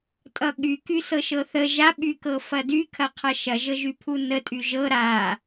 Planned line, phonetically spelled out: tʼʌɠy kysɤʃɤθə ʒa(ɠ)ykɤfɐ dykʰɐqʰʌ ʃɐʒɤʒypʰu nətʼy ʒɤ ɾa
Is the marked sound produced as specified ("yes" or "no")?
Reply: no